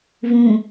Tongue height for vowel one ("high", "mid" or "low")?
high